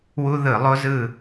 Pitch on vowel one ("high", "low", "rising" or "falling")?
high